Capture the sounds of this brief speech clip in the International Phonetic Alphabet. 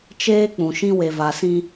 t͡ʃeː˦k͡pũ˨ʃĩ˦ we˨va˨sĩ˦

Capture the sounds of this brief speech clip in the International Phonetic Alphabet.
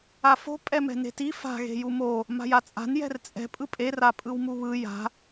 afo̤ pʼɛmɛ̤ne̤ti fa̤ ɣe̤jumo | ma̤jat͡sʼa̤n jɛ̤rt͡sʼɛ̤ pʼɯpʼe rapʼɯwmuβɯ ja̤

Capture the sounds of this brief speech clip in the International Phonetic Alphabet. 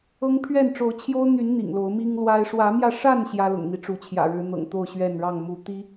ɤ˦ŋpʰɥɛ˥˨n ʈ͡ʂo˨˦ʊ̯t͡ɕʰjo˦ʊ̯n̪y˨˦n n̪ḭ˨˩ŋlo˨˦ʊ̯mi˦ŋlwa˦ɪ̯ ʂwä˨˦mjä˧ʂa˥˨n ɕjä˦lʊ̰˨˩ŋn̪i˦ʈ͡ʂu˨˦ t͡ɕʰjä̰˨˩ɻɻ̩˨˦n̪ɤ̰˨˩ŋt̪o˥˨ʊ̯ ɕɥɛ˥˨nɻɑ˥˨ŋ mu˨˦t̪i˦

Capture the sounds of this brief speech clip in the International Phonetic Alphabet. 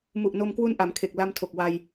mu˨˩ʔno˧mkwu˦˥n ʔa˩˦mkʰe˨˩k̚la˧mtʰo˨˩k̚ wa˧j

